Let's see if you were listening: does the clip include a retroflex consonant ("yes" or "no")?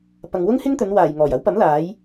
no